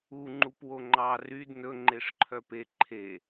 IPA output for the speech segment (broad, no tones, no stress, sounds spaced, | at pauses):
u ŋ͡ǃ u p w o ŋ͡ǃ ɑ r y d n ɵ ŋ͡ǃ e ʂ ǃʰ œ p e ǃʰ e